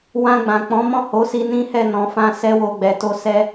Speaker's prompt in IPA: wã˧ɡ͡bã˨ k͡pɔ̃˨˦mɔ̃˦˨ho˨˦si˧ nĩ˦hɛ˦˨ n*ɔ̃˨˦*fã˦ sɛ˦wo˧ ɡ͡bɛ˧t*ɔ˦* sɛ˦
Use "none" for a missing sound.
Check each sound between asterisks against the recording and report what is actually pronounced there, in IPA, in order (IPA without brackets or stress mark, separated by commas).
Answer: ɔ̃˨˦, o˦